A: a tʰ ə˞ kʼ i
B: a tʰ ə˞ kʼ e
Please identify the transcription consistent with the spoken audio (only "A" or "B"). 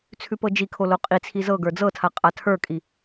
A